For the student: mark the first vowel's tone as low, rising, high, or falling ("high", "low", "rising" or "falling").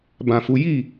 low